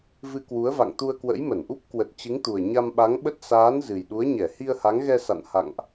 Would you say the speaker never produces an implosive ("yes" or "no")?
no